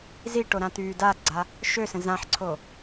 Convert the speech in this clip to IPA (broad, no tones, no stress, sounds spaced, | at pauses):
z i ʈ o ɾ ã t̪ yː d a ɡ͡ǀ a | ʃ ø s ə̃ z ã ħ ǀʰ o